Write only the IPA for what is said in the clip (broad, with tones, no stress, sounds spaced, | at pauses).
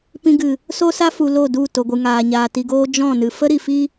p ĩ˧ ɡ ɨ˨ | s o˦ s a˦ f u˨ l o˦˨ d u˦˨ t o˨ ɡʷ ɨ˨ ŋ aː˨ ɲ aː˨ t i˨ ɡ oː˧ d͡ʒ ɔ̃˦˨ n ɨ˨ f ə˦ ɾ i˨ f i˦